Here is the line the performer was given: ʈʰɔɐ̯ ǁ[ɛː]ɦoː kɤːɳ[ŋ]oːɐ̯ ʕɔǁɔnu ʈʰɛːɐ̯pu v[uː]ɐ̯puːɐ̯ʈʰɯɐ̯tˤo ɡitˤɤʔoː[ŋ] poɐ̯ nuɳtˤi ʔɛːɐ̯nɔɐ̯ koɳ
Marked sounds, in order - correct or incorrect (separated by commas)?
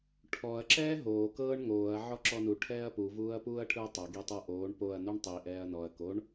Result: correct, correct, correct, incorrect